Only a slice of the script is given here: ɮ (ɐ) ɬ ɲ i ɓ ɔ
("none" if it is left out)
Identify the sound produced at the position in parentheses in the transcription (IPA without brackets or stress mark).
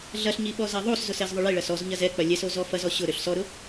ɐ